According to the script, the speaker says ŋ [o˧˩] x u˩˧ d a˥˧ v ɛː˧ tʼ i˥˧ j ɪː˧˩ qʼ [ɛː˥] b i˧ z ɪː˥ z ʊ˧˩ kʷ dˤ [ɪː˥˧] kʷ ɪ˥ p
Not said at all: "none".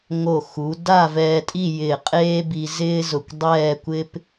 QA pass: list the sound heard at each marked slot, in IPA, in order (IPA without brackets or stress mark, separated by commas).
o˧˩, eː˥, ɛː˥˧